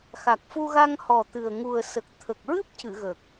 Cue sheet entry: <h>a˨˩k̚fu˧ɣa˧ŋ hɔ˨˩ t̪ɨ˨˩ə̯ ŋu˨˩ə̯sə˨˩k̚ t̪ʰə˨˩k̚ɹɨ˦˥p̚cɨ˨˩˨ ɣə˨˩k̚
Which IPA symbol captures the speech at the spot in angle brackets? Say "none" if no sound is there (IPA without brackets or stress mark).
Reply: x